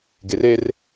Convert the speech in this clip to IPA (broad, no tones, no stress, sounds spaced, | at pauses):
ɡ e r e r